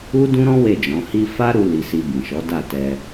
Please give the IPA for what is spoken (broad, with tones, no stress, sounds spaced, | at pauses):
u˦ d ũ˦ ɾ ɔ̃˦ w e˦˨ d͡ʒ ɔ̃˨˦ h i˦ f a˦ ɾ u˧ l i˧ s i˧ b ĩ˨ ʃ ɔ˨˦ d a˦˨ t ɛ˧